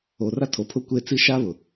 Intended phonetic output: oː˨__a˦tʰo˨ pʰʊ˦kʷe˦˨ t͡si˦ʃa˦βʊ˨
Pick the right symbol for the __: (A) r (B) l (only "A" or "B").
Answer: A